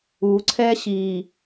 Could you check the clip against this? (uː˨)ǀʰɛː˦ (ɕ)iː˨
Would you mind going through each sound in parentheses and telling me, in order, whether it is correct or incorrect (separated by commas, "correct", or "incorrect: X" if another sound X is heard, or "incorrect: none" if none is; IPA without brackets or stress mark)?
correct, correct